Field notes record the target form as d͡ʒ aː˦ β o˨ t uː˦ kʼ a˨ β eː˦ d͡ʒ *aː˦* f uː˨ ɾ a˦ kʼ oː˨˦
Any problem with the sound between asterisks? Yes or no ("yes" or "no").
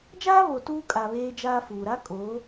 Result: no